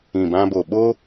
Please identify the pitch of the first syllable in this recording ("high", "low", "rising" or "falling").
low